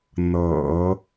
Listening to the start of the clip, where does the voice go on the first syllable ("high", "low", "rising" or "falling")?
low